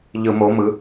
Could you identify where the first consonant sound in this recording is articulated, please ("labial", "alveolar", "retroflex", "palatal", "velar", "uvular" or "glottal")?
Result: palatal